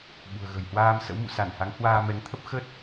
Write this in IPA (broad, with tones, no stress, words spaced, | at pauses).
ɓṳ˨˩ə̯ɣə̤˨˩j hwaː˧msə̰˧˥wmṵ˧˨ sa˧˩nha˨˦ŋhwaː˧ mɛ˨˦ŋt̪ʰə˦˥p̚ xə˦˥t̚